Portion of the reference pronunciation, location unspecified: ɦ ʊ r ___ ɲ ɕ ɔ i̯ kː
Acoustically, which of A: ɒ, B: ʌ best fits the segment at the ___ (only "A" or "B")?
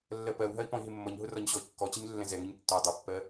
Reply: A